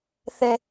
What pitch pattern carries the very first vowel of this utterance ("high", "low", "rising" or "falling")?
high